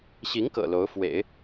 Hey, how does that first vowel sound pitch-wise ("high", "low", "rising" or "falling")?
rising